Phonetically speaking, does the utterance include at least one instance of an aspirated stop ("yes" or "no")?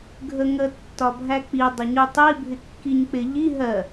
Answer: no